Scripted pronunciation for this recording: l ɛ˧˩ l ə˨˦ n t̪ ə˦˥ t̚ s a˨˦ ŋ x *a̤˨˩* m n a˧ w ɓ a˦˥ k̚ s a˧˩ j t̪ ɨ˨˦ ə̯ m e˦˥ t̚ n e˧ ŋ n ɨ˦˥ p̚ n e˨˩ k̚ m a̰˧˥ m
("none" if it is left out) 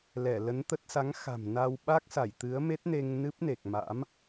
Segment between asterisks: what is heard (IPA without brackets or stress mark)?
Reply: a̤˨˩